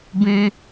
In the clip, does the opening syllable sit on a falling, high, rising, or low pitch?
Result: high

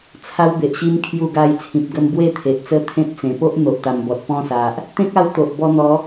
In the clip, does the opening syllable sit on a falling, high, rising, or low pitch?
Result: high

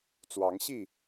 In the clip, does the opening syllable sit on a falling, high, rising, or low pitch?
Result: rising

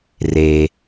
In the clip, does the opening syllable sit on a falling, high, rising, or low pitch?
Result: low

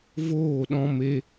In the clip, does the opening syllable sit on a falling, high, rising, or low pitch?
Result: falling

